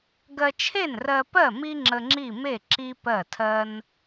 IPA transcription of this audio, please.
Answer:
ɡ ɜ˧ t͡ʃʰ e˥˩ n r ɜ˧ p ɜ˥˩ m i˥ ŋ͡ǁ ə˧ ŋ͡ǁ i˥˩ m e˥˩ ǁ i˥ p ɜ˥˩ tʰ ɜ˥ n

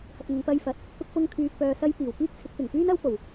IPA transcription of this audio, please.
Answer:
h ɐ˨ t̚ ŋ ʊ˨ ŋ p ɐ˧ j f ɐ˨ t̚ | k ʊ˧ k̚ p ʊ˧ ŋ kʰ yː˨ k̚ p œː˨ s ɐ˧ j p iː˨˩ w k iː˥ k̚ t͡sʰ ɪ˨˥ k̚ p ɪ˨˩ ŋ p yː˥ n ɐ˥ w p o˨˩ w

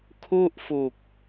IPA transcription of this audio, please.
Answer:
kʰ u˥˩ ʔ f u˨˩ k̚

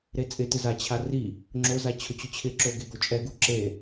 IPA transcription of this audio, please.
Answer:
ɾ e t͡sʼ ɪ t ɪ z a t͡ɕʰ a r i | ŋ͡ǁ o z a t͡ɕʰ ʊ t͡ɕ ʊ t͡ɕʰ ɪ ǁ o ɡ e ɡ o t͡ʃʼ ɛ ɡ u ǁ e

